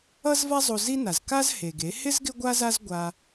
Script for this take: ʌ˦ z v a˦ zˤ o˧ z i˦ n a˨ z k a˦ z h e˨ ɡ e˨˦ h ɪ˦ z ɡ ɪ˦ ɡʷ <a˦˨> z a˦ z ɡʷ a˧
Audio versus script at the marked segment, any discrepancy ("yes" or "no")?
yes